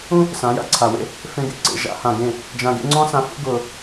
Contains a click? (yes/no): yes